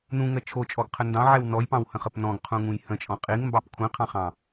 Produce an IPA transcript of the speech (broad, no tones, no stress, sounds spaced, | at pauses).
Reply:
n ũ ŋ ɜ t͡ʃʰ o t͡ʃʼ ɔ ɡ qʰ ə n d ɑ̃ ʕ ɛ w n ɔ j p ɑ̃ w h ə̃ χ ə p n ɔ̃ ɡ qʰ ũ ŋ ũ j h ə̃ t͡ʃʼ ɔ̃ qʼ i ŋ m b ɑ p kʷʰ ĩ qʰ ɑ̃ χ ɑ̃